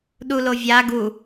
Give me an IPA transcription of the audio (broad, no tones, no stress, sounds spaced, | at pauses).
ɗ u l o vʲ a ɡ u